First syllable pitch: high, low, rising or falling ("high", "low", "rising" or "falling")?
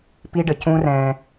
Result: high